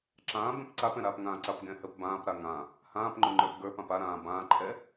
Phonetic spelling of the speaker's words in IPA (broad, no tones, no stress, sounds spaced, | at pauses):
ǁ ãː b ɛ̃ p ǀ a p ɛ̃ ɾ aː p ŋ ãː ǀ a p ɡ ɛ̃ h ə p b ãː p ɾ a ŋ ã | h ãː p ŋ͡ǃ ʊ ŋ͡ǃ ə˞ p ɡ ə˞ p ã p a ɾ ãː b ãː ǃʰ ɛ